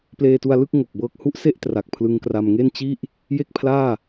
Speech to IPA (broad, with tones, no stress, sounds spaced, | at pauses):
p l eː˧ t u˧ a̯ l ɯ˥˩ k̚ ŋ o˨˩ k̚ b ɤː˦˥ k̚ h u˦˥ ʔ s e˥˩ ʔ t r a˨˩ k̚ pʰ l ɯ˧ ŋ k r a˧ m ŋ e˥˩ n t͡ɕ i˥˩ ʔ | j e˥˩ k̚ pʰ l aː˥˩